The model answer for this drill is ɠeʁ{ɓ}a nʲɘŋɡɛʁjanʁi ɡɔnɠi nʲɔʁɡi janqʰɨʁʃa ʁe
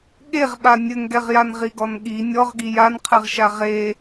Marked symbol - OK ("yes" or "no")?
yes